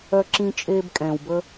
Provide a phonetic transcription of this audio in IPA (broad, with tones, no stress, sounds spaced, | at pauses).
œ˦ ǁ ĩ˦ t͡ʃʼ eː˦ b kʼ ɛ̃ː˨ w b ə˦